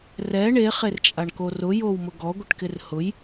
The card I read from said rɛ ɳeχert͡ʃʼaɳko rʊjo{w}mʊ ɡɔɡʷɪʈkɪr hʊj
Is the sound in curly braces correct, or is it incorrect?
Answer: correct